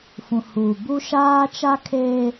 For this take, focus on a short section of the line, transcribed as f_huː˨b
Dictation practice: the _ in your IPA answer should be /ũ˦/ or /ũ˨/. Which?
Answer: ũ˨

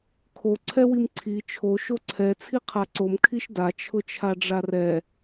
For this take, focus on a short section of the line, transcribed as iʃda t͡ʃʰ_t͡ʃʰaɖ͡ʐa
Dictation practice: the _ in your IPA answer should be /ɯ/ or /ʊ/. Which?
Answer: ʊ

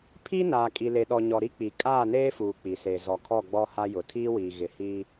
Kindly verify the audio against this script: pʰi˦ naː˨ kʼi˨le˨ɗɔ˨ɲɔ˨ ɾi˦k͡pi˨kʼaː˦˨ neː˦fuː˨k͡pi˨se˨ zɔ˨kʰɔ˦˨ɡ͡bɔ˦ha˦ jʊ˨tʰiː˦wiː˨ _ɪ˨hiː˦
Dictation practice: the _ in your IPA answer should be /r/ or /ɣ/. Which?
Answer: ɣ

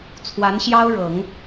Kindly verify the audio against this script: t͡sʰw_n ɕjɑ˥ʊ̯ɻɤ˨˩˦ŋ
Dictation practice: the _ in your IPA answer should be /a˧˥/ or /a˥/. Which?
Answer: a˧˥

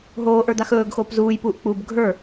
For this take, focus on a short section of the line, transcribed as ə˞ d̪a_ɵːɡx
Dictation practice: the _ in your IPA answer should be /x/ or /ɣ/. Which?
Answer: x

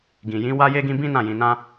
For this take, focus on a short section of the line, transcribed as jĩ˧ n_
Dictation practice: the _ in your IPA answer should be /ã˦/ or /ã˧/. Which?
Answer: ã˧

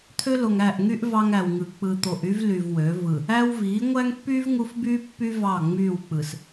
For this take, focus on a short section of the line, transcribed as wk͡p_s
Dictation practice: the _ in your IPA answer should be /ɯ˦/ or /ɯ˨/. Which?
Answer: ɯ˨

